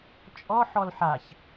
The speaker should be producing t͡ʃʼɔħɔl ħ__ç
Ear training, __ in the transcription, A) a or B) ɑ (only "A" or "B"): A